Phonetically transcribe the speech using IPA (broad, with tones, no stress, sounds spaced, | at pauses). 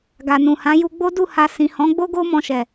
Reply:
ɡ a˨ n ũ˨ h ã˨˦ j u˧ ɡ͡b o˦ d u˦˨ h a˧ s ĩ˨ h ɔ̃˨˦ ɡ͡b o˦ ɡ o˦ m ɔ̃˧ ʃ ɛ˨